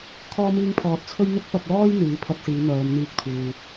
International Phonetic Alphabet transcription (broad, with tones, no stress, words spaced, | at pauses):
kʰɔː˥miː˥ŋpʰɔː˧t̚ t͡sʰɵ˥ɥn̪ʊ˥k̚ pɐ˧p̚lɔː˥j n̪iː˨˥pʰɐ˧t̚siː˨˧ n̪œː˨˧mn̪iː˧k̚t̪ʰuː˨